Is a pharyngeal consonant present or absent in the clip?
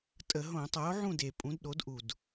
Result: present